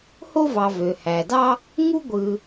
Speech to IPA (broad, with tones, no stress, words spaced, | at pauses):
ho˥ vɑ˨vø˩hæ˩dɑ˥ | ŋu˥ ɡʷɯ˨